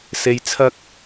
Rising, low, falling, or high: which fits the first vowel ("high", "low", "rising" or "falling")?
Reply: low